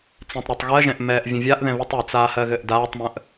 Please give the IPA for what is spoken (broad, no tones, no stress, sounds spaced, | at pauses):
t͡s ɛ̃ tˤ ɾ a tˤ ɣ ɜ ʒ ɛ̃ ʔ m ɛː ʔ vʲ ə̃ vʲ a ʔ ð ɛ̃ β ɨ tˤ ɨ t͡s aː h ɜ ɣ ɘ ʔ d aː tˤ m ə̃ ʔ